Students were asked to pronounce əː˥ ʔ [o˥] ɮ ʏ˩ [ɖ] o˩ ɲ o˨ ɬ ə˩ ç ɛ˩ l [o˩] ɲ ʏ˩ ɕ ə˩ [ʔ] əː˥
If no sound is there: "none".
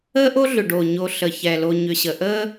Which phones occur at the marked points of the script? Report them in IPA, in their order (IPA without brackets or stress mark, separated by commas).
o˥, ɖ, o˨, ʔ